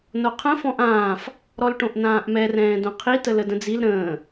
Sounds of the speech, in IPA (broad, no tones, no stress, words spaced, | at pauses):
noqʰə̃ fɔ̃ʔãːf | ɾɔlʈõʔnãːʔmɛ rɛ̃ːdõqʰi tələdə̃d͡zil ɾə̃ː